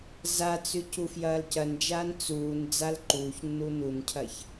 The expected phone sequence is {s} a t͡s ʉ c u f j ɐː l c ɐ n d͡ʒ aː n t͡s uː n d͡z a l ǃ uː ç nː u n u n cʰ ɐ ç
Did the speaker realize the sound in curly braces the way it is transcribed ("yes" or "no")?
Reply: no